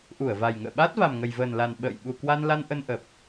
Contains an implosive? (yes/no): yes